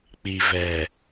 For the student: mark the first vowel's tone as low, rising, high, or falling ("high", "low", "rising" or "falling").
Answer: low